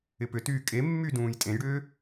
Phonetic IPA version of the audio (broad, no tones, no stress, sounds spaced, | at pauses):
ɪ p ʏ t yː kʼ e mː y d ũː j tʼ ẽ j ɽ ʏː